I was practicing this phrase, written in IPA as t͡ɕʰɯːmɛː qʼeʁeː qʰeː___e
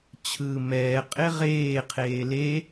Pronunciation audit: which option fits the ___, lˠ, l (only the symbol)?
l